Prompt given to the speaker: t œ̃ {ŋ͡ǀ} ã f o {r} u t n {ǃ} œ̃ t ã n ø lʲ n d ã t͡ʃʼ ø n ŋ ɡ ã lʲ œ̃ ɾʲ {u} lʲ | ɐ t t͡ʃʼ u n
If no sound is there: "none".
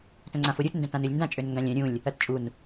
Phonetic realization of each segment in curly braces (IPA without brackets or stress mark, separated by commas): ŋ͡ǀ, ɾʲ, d, ũ